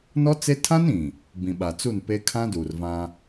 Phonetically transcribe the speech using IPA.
n ɔ˦ t͡s e˦ tʰ ã˦ n ĩ˨ | b ĩ˨ ɓ a˨ t͡s u˦˨ n p e˦ kʰ ã˦ d uː˨ r v ã˦

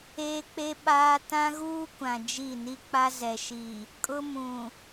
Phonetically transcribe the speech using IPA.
eː˦ k͡p e˦ ɓ aː˦ t ã˦ ɣ uː˦ kʷ ã˨ d͡ʒ i˦˨ n i˦ k͡p a˦ z ɛ˨ ʃ i˨ | kʼ ʊ˦ m ũ˨

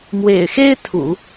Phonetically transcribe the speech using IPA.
m w ḛ˨˩ ɪ̯ x e˥ ɪ̯ t̪ʰ ṵ˨˩˦

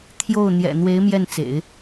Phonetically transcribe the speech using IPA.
t̪ʰ j o˥˩ ʊ̯ n̪ j ɛ̰˨˩ n̪ w e˧˥ ɪ̯ m j ɛ˥˩ n t͡s ḛ˨˩˦ ɪ̯

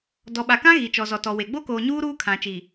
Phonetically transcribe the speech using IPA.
d ɔ˨ ɓ a˨ k ã˦ ɣ i˨ t͡ʃ ɔ˨ z ɔ˨ t ɔ˨ w e˨ ɡ͡b o˦ k oː˨ ɲ uː˦ ɾ uː˦ kʰ ã˨ t͡ʃ i˨

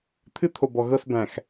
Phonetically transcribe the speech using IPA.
t̪ʰ ɨ˦ t̪ʰ o˨ b ɔ˨ ɣ ɤ˦˨ s b æ̃˨ x

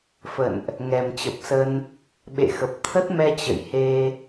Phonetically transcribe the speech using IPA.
f ə̰˧˨ n ʔ | ŋ ɛ˨˩ m t͡ɕ ə˨˩ p̚ s ə˧ n | ɓ ḛ˧˨ x ə˨˩ p̚ t̪ʰ ə˦˥ t̚ m ɛ˧ t͡ɕ ə̰˧˨ j h e˧

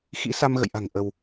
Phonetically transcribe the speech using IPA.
x ḭ˧˥ s a˧ m ɣ ə̰˧˨ j ʔ a̤˨˩ ŋ ʔ ə˧ w

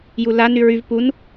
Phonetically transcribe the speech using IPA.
j u l a n y ɹ y v p u n

